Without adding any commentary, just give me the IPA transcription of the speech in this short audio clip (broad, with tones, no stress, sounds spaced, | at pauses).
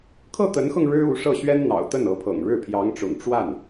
kʰ ɤ˥˩ t̪ ə˧˥ n x ɤ˧ ŋ ɻ ɻ̩˥ u˧˥ ʂ ɤ˥˩ ɕ ɥ ɛ˥ n n̪ ɑ̰˨˩ ʊ̯ t̪ ə˥˩ n ɤ˧˥ pʰ ɤ̰˨˩ ŋ ɻ ɻ̩˥˩ pʰ j ɑ˧˥ ŋ ʈ͡ʂ ʊ̰˨˩ ŋ ʈ͡ʂ w a˥˩ n